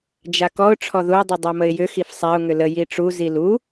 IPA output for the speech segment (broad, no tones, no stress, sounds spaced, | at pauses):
d͡ʒ a k ɔ ʊ̯ ʈ͡ʂʰ ɔ ð u ə̯ dˤ u dˤ a m ə ɪ̯ j ʏ x i f sˤ a ʊ̯ ŋ ʏ l ə j i ʈ͡ʂ u z i l u